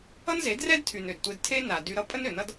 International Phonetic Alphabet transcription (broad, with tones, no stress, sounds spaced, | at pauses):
ʌ˦ n z e˨˦ d r ɛ˦ d tʰ y˨ n ø˨ d tʷ e˧ d tʰ e˦ n a˨ d y˧ ɾ ʌ˦ pʼ ə˦ n ø˨ n ʌ˦ d